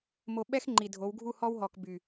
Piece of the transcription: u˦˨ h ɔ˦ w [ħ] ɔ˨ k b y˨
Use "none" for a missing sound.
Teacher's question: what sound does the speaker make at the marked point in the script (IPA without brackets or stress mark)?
ɦ